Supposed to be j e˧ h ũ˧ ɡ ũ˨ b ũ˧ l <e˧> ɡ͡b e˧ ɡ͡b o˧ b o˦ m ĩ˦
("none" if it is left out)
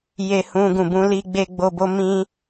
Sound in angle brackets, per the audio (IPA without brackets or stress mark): i˧